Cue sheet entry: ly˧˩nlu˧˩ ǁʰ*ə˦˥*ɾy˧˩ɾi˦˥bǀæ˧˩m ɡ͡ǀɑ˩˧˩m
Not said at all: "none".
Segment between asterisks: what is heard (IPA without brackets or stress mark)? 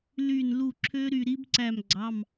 ø˦˥